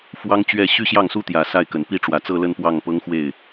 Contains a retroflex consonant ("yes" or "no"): yes